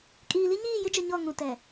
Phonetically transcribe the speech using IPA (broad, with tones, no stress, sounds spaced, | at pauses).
kʼ iː˨ l i˦ ɲ iː˦˨ j ɪ˦ d͡ʒ ʊ˨ ɲ ɔ˦˨ ŋ ũ˨ t ɛ˨